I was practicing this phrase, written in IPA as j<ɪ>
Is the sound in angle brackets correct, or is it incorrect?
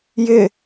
correct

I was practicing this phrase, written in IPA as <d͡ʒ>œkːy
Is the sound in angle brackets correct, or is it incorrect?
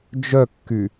correct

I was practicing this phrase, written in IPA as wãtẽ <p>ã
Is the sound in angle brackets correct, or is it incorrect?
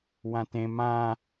incorrect: m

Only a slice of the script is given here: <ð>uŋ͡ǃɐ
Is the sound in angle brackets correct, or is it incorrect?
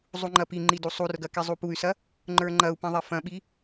incorrect: zˤ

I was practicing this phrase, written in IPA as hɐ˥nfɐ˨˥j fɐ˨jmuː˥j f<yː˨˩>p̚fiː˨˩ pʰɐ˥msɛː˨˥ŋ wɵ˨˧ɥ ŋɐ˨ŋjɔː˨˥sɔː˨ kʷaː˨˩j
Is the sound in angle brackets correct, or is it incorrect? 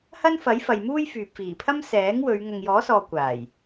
incorrect: yː˨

